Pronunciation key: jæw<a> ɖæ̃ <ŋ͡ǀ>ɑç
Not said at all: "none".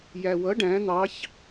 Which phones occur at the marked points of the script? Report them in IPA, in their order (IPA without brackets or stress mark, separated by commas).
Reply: ʌ, n̪